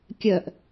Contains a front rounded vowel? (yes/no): yes